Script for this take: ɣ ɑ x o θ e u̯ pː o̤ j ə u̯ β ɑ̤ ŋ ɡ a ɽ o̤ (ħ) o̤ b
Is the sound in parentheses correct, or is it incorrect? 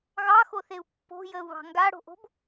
incorrect